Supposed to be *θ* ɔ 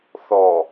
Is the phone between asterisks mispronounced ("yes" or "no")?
no